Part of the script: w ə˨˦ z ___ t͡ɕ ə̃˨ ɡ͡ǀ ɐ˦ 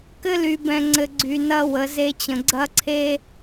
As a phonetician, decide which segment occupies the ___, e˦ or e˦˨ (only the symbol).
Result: e˦